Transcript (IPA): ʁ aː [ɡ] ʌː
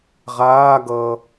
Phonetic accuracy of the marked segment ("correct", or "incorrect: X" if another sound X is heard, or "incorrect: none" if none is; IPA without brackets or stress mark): correct